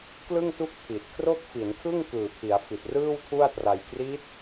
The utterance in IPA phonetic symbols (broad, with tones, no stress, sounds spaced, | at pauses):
k l ɯ˥˩ ŋ t u˥˩ k̚ tʰ i˨˩ t̚ kʰ r o˥˩ k̚ f i˩˦ n kʰ ɯ˥˩ ŋ k ɯː˨˩ pʰ i˩˦ a̯ f i˨˩ t̚ r ɯː˥˩ w tʰ u˥˩ a̯ t r a˧ j k r i˦˥ t̚